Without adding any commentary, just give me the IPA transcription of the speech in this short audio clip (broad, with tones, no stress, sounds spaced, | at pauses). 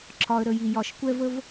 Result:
ǁʰ ɒ˩ ə̯ ɾ ə˩ j i˩ j ɒ˩ ʃ kʷ ɛ˧ v ə˧ v